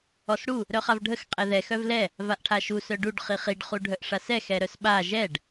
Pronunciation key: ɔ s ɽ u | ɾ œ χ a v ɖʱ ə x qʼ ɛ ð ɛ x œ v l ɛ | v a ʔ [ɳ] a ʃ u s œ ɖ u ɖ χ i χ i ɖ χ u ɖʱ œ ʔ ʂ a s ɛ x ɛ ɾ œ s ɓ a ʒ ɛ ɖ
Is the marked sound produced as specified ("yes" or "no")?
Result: no